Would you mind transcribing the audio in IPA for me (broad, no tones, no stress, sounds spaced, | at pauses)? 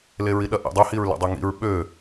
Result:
l e ɹ i ɗ ɐ ʔ ḭ dˤ y h i ɹ l ɛ̰ dˤ y ŋ ḭ ɹ ɓ ø